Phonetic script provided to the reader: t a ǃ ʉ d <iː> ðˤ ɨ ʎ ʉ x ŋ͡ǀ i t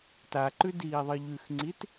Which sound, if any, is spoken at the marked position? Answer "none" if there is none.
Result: iː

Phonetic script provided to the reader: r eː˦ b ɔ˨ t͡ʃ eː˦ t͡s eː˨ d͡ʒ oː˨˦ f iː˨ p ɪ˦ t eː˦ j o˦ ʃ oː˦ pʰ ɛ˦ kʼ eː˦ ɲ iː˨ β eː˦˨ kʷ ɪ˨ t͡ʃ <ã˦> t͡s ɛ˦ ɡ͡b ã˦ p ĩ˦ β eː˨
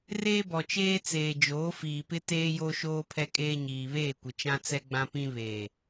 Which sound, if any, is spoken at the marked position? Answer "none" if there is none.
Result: ã˦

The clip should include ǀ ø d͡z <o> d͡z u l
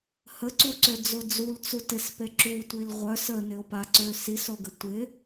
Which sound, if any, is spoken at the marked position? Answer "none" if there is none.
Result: o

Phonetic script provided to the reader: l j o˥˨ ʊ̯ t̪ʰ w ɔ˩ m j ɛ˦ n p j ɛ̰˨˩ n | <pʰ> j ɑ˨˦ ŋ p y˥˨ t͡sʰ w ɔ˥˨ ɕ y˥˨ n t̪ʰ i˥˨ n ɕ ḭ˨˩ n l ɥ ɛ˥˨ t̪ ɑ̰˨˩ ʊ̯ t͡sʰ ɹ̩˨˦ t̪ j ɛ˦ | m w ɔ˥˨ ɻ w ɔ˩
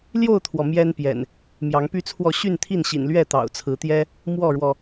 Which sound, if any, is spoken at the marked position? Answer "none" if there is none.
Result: m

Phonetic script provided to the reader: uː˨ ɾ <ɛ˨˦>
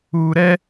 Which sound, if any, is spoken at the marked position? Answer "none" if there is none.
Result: ɛ˦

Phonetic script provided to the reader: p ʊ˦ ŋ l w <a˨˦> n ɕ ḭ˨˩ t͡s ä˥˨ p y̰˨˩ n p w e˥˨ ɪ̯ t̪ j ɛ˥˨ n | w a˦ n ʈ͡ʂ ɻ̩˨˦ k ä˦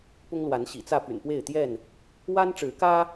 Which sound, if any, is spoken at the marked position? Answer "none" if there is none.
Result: a˨˦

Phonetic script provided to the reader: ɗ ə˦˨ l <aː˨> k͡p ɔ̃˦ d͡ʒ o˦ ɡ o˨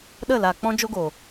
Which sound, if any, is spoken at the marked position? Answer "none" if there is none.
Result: aː˨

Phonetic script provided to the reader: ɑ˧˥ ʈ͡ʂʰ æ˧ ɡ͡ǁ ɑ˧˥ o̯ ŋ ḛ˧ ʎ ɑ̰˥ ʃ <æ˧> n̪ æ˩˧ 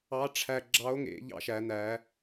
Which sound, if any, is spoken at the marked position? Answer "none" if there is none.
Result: æ˩˧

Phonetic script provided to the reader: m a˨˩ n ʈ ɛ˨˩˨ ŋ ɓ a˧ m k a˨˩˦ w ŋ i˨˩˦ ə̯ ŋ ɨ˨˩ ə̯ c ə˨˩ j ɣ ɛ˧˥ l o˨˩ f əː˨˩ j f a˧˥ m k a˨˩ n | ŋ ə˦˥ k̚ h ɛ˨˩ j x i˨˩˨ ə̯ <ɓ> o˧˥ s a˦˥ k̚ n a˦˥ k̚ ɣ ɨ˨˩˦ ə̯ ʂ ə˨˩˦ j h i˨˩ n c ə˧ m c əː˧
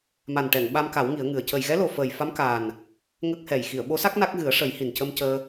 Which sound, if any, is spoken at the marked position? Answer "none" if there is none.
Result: ɓ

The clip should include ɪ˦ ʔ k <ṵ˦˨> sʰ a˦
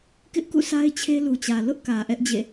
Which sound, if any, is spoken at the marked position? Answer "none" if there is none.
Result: ṵ˦˨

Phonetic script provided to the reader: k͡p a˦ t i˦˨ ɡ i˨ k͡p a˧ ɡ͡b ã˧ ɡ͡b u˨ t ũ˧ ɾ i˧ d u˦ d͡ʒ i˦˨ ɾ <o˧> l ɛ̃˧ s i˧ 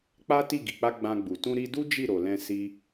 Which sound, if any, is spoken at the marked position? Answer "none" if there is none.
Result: o˨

